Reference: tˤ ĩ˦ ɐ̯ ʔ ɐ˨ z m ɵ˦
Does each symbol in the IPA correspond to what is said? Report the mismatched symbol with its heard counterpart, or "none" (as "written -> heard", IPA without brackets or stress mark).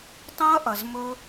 none